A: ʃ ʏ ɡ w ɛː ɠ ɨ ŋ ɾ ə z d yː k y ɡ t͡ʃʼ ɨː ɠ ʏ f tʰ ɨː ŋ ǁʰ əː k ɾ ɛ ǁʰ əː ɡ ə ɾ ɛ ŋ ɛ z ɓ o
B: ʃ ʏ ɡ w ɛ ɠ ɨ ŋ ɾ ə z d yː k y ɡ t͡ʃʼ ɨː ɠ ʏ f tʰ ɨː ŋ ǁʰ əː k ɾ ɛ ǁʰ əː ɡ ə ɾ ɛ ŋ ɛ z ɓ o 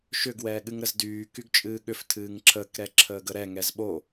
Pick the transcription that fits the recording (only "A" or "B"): A